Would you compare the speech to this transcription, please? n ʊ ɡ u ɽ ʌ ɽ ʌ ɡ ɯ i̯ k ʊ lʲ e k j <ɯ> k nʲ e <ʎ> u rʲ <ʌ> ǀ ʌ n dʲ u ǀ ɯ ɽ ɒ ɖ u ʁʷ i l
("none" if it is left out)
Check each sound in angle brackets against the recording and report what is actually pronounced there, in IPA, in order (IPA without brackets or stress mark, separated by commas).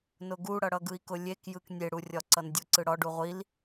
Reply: ɯ, ɽ, ɒ